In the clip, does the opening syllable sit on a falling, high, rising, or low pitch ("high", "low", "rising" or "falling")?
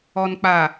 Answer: low